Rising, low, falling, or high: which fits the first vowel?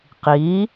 rising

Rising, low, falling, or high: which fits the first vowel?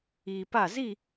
low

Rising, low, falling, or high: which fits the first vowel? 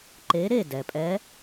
rising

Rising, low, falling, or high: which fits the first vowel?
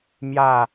falling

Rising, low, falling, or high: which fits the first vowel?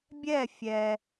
falling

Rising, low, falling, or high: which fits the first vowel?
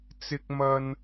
high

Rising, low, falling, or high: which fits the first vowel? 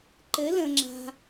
rising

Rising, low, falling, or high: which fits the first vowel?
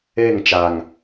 falling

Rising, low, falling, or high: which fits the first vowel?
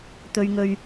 low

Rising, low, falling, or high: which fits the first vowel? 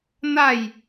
falling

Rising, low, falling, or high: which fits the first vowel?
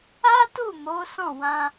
high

